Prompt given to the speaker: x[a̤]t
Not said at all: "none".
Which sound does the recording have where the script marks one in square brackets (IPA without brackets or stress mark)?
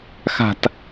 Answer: a̤